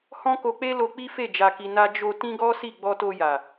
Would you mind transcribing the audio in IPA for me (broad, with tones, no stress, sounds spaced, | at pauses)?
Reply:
h ɔ̃˦ k o˧ k͡p e˦ l o˧ k͡p i˦ f e˦˨ d͡ʒ a˧ k i˧ n a˦ d͡ʒ o˧ t ĩ˦ ɡ ɔ˦ s i˦˨ ɡ͡b ɔ˧ t o˧ j a˨